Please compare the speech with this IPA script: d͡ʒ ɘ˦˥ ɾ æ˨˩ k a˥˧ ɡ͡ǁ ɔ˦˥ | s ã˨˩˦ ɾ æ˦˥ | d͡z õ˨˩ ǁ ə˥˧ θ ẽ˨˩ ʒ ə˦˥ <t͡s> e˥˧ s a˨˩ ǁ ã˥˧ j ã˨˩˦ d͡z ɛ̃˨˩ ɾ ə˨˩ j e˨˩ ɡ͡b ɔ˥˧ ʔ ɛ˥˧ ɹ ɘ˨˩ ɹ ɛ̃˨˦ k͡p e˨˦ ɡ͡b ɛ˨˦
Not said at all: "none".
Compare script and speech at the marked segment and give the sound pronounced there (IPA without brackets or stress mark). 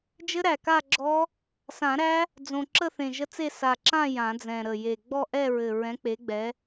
t͡s